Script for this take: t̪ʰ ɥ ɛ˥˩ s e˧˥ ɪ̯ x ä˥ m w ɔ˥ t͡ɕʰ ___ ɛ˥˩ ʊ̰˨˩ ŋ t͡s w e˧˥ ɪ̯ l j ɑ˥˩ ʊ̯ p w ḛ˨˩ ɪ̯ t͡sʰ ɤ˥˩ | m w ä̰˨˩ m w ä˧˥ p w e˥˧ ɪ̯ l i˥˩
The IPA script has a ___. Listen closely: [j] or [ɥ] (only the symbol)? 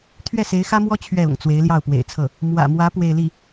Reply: ɥ